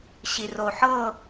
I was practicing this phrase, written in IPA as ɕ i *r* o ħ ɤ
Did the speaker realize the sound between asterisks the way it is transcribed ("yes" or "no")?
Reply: yes